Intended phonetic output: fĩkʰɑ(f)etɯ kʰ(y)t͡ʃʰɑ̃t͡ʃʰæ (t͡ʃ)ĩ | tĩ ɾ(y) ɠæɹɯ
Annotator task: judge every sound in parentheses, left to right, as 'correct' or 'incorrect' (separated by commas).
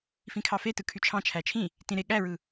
correct, correct, incorrect, incorrect